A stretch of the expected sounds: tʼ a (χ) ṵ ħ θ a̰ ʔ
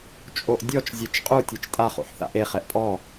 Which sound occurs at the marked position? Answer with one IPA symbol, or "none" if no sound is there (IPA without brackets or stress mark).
χ